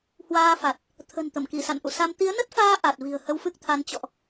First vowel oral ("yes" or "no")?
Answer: yes